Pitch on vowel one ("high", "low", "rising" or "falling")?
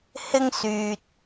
high